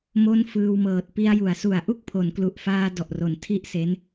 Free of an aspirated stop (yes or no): no